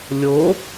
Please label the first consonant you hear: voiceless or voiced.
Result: voiced